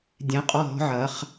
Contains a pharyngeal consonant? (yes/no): yes